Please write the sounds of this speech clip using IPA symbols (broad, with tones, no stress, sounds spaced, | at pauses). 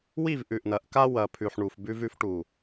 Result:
w i˦˨ v ʔ ʉ˨ ʔ n ɐ˨˦ ʔ k a˦ w ɐ˨ pʰ ʉ˨ ħ ɳ u˨ f b ʉ˦ v ʉ˦ f ʈ u˨